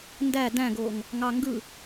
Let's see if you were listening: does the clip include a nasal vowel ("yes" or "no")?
yes